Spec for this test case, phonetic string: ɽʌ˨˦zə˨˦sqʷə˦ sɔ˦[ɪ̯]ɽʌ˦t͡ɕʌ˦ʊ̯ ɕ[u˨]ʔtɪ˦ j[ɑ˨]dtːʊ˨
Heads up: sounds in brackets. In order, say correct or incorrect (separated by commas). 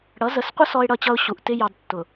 correct, correct, correct